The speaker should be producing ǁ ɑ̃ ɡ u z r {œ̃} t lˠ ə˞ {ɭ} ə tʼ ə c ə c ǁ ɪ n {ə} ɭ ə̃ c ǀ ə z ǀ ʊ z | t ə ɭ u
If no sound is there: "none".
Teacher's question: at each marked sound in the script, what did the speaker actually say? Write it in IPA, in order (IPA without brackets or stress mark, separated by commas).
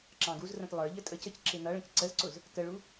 ə̃, ʎ, ʌ